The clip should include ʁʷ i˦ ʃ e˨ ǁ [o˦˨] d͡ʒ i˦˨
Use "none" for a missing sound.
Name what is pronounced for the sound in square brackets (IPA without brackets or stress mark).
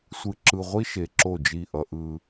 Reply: o˦˨